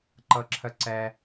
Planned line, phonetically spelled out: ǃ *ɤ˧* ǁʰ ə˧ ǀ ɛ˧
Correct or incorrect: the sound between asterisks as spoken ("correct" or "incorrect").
correct